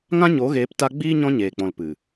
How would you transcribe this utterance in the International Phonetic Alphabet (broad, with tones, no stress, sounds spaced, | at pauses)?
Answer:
ŋ ã˦ ɲ o˨˦ ɣ eː˨˦ p t a˧ ɡ͡b iː˦ ɲ ɔ̃˦ ɲ eː˨ k͡p ɔ̃˨ l p ɨ˨